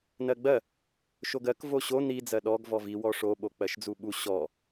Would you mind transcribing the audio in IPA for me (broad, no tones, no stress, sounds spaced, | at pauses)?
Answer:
n ɜ ɡ͡b ɜ | ʃ o ɡ ɜ k v o ɕ o n i d͡z ɜ ɗ ɔ ɡ v ɔ v i w ɔ ʂ o ɓ o k͡p ɜ ʃ d͡z u ɓ u ɕ ɔ